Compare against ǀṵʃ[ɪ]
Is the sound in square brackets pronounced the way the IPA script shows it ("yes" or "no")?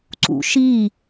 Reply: no